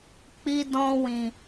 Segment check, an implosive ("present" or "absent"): absent